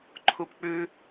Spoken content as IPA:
ǃʰupk͡pʉ

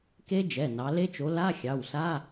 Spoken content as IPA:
ke˦˥ d͡ʒɛ˩˧˩ nɑ˨˦ le˦˥t͡ʃo˨˦ la˧˥˧ xʲɑ˩˧˩wsa˧˥˧

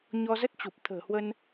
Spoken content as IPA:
ɲɔ˧zə˦˥t̚t͡ɕu˨˩p̚ t̪ʰə̤ː˨˩hwə˧n

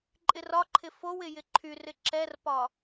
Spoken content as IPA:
ǃʼɪrɒǃʰɪ fowɪ jɪǃʰyrɪ ǁɛrpɒ

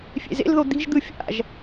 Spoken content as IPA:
fʲḛzḛlðo d̪i̤ʒd̪ɯ fʲa̰ʒ

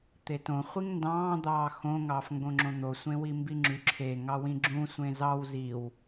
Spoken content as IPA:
t̪etõ χʷiŋndɑ̃ː d̪ɑːxõ ŋɑːfŋɡõŋ͡ǁõn̪o sʷẽwimbiŋ͡ǁy ǁʰe ŋɑwĩɡ͡ǁũ sʷẽzɑw ziw

